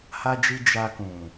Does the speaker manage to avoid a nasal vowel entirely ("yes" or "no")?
no